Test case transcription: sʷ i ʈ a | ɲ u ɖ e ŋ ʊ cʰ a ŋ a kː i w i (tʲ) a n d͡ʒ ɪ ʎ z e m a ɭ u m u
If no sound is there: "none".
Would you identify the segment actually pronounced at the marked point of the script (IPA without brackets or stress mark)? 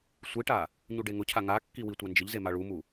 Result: tʷ